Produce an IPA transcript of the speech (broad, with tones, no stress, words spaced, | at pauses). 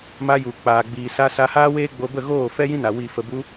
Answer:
ma˧ju˨ k͡paː˨ɡ͡biː˨sa˧ sa˧haː˦weː˦ ɡ͡bo˧bə˦˨ ɣoː˦˨ fɛ˦jĩ˦na˨ wiː˨fə˨bu˧